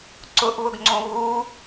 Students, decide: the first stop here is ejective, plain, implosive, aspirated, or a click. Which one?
click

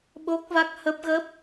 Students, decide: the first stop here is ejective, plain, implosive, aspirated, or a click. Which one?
implosive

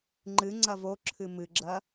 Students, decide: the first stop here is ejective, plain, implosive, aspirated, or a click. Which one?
click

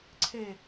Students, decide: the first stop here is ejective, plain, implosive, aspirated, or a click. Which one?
click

